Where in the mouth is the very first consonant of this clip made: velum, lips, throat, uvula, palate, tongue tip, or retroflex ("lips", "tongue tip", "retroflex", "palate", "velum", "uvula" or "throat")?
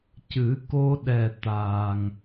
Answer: palate